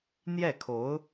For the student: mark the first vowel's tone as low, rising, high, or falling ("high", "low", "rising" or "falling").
falling